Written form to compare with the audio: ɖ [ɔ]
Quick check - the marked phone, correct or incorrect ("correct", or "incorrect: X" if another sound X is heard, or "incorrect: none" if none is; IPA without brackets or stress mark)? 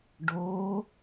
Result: incorrect: o